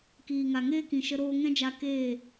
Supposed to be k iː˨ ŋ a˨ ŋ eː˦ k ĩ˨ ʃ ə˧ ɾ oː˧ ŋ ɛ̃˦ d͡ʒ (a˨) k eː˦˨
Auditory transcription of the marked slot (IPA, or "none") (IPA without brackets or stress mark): a˧